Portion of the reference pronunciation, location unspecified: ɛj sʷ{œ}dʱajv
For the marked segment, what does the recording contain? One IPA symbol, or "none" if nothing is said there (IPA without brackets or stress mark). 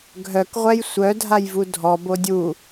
œ